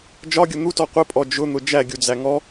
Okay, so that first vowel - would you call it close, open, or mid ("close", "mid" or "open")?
open